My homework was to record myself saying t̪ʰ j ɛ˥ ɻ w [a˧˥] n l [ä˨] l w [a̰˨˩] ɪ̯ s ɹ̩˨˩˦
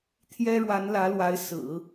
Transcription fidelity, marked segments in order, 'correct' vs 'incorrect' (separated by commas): correct, incorrect, incorrect